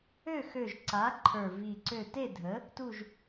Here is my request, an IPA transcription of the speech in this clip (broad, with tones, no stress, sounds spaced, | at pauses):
ø˥˨ x ø˧˩ ʒ ǀ a˩˥ ǃʰ ə˞˧˩ v i˧˩ ǀ ø˥˨ t e˥˨ dʱ ə˩˥ | t u˧˩ ʒ